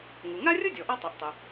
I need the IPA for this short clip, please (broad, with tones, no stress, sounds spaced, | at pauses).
ŋ u˩ ŋ a˥ rʲ ʊ˥ dʲ ɔ˩ ʔ ɔ˥ tˤ ɛ˩ ʔ tˤ o˩